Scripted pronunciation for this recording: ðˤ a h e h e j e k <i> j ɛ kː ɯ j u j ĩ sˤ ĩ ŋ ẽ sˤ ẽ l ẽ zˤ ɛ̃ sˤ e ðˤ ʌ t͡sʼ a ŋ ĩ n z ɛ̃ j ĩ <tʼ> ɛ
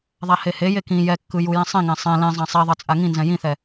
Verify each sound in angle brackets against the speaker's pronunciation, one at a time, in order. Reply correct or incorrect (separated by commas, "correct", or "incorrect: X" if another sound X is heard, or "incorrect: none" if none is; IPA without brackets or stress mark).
incorrect: ĩ, incorrect: θ